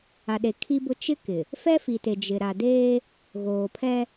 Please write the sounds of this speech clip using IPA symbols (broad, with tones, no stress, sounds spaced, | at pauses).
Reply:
a˨ ɗ e˨ kʰ i˦ b ʊ˦ t͡ʃ ɪ˦ k ɪ˨ | f ɛ˦ f i˨ t e˨ d͡ʒ ɪ˨ ɾ a˨ d eː˦ | ɣ oː˨ pʰ ɛ˦